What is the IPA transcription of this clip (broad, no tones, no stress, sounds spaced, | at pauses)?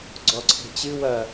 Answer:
ɡ͡ǀ ɔ ǀʰ e̤ t͡ɕ ɨ w ɐː